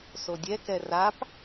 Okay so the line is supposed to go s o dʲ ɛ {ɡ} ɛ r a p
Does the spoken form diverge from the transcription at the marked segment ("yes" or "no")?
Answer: yes